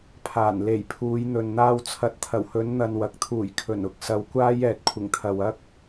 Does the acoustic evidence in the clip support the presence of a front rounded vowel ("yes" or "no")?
no